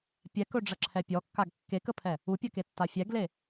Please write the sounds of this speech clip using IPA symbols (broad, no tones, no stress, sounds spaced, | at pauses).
pʲ ɛ k ɵ ɖ͡ʐ ɐ ǁʰ ɛ pʲ ɔ kː a ɡ kː e k ə pʰ ɛ | u pʲ ə k e tː a fʲ ɛ ɡ l e